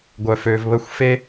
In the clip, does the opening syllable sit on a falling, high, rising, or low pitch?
low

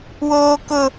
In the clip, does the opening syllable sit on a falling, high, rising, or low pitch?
high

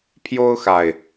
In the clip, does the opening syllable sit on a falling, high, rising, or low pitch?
high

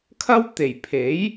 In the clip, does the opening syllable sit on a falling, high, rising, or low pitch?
high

